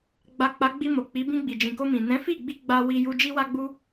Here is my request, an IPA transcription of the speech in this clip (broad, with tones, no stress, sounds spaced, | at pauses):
ɡ͡b a˨ k͡p a˨˦ ɡ͡b i˧ m o˨ k͡p i˨˦ b ĩ˧ ɡ͡b i˨ d͡ʒ ĩ˨ k o˧ m ĩ˨ n ɛ̃˨˦ f i˦˨ ɡ͡b i˧ ɡ͡b a˧ w i˧ j u˧ d͡ʒ i˦ w a˦ ɡ͡b u˦